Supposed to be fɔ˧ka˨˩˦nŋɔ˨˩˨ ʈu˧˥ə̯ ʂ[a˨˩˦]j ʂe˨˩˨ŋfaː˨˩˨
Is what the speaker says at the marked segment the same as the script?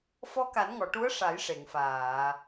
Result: yes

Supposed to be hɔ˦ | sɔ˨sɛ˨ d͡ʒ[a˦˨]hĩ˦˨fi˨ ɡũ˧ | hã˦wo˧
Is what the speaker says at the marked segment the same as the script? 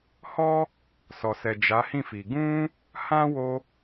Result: no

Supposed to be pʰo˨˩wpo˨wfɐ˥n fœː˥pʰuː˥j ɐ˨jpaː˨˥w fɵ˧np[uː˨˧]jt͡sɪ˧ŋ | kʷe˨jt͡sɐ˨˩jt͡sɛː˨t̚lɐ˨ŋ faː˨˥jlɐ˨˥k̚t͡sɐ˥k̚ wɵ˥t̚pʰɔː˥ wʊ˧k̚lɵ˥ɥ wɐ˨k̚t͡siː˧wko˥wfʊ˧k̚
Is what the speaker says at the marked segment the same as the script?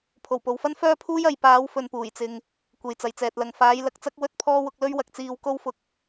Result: no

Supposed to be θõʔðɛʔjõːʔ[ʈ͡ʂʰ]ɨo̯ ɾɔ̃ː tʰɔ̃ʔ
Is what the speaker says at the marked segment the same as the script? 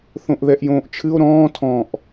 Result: no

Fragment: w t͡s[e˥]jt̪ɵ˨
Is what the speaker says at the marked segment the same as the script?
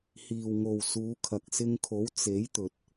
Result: no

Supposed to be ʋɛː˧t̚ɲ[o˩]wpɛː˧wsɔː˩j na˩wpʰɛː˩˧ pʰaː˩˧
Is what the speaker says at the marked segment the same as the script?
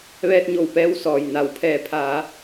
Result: no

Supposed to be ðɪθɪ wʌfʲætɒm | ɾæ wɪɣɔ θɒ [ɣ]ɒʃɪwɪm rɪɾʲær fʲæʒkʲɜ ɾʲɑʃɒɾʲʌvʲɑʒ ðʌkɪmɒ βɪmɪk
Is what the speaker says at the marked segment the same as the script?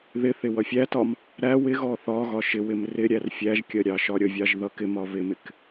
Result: yes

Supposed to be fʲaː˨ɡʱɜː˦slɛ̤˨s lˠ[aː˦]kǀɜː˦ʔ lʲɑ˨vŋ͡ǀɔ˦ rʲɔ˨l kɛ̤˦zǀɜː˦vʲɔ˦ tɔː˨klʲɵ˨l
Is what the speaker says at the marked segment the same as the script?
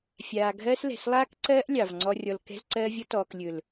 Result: yes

